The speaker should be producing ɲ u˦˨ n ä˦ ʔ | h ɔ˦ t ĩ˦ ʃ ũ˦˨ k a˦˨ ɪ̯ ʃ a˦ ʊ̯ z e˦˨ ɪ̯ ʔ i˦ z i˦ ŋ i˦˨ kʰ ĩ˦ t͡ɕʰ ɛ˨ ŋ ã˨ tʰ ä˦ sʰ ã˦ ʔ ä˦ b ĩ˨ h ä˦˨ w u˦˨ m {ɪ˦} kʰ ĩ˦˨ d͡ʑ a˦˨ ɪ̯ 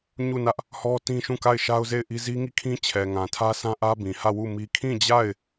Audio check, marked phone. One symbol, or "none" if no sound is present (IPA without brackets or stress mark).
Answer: i˦